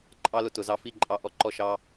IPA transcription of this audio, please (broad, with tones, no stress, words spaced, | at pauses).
ǃʼɑ˦ lʊ˧tʊ˨zɑ˧fi˦˨ ǃʼɑ˧ ʔɔ˦˨ǃɔ˦ʃɑ˦